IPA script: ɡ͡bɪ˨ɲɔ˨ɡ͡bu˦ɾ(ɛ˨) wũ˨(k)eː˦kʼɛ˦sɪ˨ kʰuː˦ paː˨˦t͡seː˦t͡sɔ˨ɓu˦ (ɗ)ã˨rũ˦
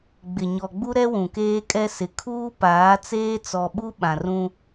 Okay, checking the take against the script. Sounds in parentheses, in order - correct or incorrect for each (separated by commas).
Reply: incorrect, correct, incorrect